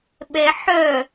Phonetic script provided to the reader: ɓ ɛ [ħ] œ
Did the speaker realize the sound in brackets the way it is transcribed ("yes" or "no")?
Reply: yes